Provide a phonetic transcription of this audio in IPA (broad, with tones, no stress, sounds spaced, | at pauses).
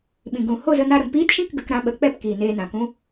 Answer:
ɓ ĩ˨ ɡ ũ˨ h o˦˨ z ə˧ n a˧ ɾ ə˨ m p iː˦ t ʃ ĩ˦ k ɡ ə˧ k ɾ ã˧ ɓ ə˨˦ k͡p ɛ˦˨ p k iː˨ n eː˧ n ã˨ k ũ˦